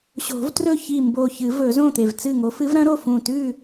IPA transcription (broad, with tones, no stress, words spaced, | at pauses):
ɕo̤˨˩˦vtrɵ˥˨ çi˧˩ mbo˧˩çɨ˨˩˦vɵ˨˩˦ zõ˥˨t̪e˧˩vt͡sɨ˥˨ŋo˧˥ fɨ˧˥vɾɐ̃˧˥ɾo˥˨fũ˧˩ tʉ˥˨